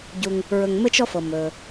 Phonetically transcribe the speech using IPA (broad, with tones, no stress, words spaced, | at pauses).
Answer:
ɟu˨ŋ | ɹɵ˨ŋ mɘ˦t͡ʃ ɔ˥fɤ˩ mɵ˩